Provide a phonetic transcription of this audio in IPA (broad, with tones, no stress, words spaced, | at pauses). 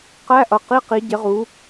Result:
qæ˧˥˧ʔʌ˨˩qi˧˥˧ qi˨˥ɟɪ˨˥ʁu˨˥